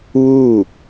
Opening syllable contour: falling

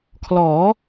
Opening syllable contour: rising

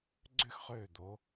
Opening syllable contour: falling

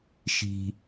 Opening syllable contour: low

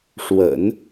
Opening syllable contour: low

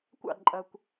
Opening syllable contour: falling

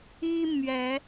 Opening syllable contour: high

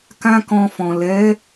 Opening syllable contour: high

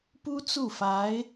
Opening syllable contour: high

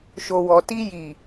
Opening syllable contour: low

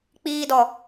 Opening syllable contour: high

